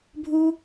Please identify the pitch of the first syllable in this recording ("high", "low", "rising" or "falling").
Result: high